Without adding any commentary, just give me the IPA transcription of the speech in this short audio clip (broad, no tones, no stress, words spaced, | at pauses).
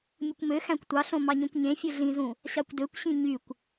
mʲukʷmøxæ̃kʷ tʷɑɬõ mɑɲõkʷɲẽfʲɯ ɮĩzũ | ɕɑkʷdøkʷɕĩ ɲykʷ